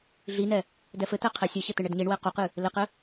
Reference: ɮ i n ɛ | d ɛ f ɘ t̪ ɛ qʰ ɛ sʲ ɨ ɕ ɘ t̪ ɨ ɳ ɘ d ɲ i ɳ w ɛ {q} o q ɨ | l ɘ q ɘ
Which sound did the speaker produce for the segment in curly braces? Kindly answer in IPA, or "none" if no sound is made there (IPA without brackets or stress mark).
q